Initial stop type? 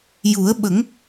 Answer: implosive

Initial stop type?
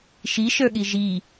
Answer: implosive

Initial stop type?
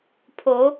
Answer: aspirated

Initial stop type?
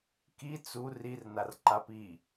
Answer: plain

